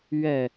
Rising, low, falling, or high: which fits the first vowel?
falling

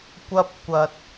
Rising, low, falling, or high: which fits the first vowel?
high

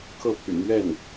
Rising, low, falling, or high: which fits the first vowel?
falling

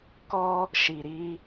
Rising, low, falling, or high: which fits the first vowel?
high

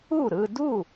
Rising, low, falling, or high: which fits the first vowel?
falling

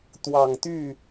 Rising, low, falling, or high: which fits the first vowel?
low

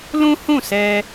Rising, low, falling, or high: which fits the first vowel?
high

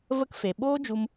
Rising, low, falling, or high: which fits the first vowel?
high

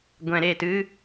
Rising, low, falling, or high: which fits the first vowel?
low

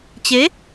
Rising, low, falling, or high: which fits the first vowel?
rising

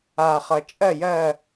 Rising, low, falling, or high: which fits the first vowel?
low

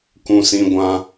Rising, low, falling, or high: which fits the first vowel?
high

